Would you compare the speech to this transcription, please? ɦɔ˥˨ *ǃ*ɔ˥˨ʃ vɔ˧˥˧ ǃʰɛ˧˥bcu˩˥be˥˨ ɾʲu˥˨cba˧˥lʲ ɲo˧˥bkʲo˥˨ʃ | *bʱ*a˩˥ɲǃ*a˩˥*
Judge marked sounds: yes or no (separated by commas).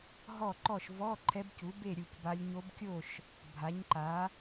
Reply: yes, yes, yes